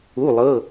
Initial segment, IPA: u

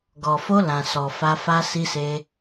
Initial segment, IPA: ɡ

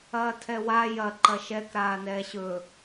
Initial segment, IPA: ɐː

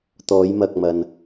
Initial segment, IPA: t̪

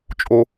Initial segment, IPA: t͡ʃʼ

